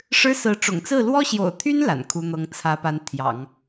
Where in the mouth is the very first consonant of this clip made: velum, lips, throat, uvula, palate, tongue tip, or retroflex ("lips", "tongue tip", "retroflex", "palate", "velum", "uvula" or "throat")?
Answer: retroflex